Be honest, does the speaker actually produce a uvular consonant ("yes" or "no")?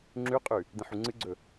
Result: yes